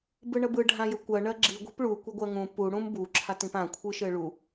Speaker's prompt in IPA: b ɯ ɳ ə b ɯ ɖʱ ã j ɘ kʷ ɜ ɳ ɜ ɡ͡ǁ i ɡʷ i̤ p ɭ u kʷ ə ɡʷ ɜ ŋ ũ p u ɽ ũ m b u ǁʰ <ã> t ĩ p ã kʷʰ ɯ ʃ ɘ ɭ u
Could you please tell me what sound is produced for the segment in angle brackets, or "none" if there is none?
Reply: a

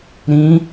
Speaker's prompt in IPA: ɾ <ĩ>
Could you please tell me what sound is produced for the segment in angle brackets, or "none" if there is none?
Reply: ĩ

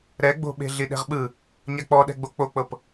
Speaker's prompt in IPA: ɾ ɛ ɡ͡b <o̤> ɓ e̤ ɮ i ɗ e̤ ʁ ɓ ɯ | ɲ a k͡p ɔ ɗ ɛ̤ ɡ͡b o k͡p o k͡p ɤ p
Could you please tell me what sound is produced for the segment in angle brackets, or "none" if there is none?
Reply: o̤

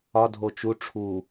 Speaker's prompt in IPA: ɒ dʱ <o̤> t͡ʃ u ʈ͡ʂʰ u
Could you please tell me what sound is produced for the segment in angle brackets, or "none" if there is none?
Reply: o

